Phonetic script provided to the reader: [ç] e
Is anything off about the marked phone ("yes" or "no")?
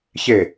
no